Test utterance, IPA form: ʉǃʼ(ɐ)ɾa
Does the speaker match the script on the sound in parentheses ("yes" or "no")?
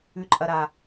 yes